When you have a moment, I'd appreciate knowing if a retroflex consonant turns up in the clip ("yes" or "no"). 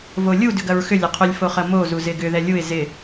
no